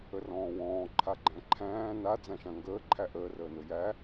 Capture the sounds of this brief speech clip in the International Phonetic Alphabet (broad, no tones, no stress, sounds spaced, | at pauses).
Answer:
ə r ɔ̃ː w ɔ̃ː ǃʰ a ɡ͡ǃ æ̃ ǃʰ æ̃ː n a d͡z ã ʃ ã ŋ ɡ əː ǃʰ æ ʔ əː r əː n ɵ j æ